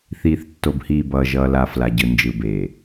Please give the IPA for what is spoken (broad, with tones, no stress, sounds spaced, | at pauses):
θ iː˨ θ tː o˨ b h iː˨ b ʌː˨ ʒ ʌː˨ l a˨ f l a˨ ɟ ɯ˨ n d͡ʒ ɯ˨ b e˨